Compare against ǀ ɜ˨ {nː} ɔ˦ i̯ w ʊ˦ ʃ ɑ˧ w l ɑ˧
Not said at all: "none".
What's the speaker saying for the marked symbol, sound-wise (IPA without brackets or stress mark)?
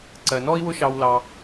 n